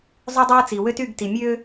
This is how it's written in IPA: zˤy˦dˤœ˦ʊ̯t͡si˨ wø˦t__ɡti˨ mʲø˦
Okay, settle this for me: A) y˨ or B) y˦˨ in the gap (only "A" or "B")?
B